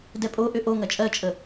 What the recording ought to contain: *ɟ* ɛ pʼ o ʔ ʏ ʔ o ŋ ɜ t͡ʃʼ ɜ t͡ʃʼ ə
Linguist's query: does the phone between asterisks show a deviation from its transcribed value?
yes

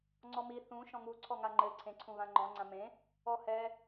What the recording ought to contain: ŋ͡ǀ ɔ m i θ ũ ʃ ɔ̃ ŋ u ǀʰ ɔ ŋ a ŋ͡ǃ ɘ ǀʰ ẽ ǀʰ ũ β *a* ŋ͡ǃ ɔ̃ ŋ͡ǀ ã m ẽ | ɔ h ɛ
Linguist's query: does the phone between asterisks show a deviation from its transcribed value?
yes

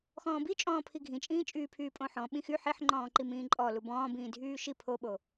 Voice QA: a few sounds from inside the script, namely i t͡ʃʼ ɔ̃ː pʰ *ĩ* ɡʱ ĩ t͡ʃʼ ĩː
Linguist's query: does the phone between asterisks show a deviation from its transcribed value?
yes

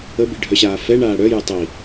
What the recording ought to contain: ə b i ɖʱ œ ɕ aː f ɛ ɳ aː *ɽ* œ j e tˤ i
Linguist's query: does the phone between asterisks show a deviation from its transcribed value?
no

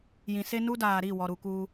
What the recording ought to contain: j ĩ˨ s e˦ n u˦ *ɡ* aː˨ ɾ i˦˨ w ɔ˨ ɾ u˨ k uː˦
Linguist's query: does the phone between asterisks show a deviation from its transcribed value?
yes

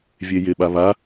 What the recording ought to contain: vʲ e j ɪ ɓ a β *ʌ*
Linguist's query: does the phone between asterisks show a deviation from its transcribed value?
yes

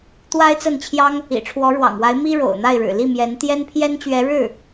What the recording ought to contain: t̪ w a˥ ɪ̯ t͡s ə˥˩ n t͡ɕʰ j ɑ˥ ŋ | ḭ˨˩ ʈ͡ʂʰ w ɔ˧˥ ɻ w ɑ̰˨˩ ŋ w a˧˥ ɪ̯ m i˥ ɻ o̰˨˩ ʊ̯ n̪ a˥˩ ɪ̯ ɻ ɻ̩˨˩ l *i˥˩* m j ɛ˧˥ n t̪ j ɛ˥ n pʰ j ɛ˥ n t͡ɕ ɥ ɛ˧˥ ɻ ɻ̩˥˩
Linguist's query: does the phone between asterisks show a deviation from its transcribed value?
no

